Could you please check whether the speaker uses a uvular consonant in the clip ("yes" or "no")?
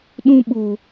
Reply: no